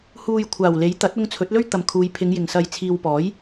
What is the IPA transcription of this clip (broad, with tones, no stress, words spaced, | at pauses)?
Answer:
huː˨j kʷʰaː˨˩wle˨˥j t̪ɐ˨˥t̚ʊ˧ŋ t͡sʰɵ˨˥t̚lɵ˥ɥt̪ɐ˨mkʰuː˨˧j pʰɪ˨˧ŋjɪ˨˩ŋ sɐ˨j t͡sʰiː˨wpɔː˨˥j